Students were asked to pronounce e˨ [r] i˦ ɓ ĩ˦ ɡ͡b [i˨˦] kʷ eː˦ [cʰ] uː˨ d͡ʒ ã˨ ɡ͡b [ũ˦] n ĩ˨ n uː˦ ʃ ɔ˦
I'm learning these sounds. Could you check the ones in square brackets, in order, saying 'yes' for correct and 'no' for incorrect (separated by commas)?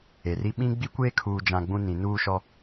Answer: yes, no, no, yes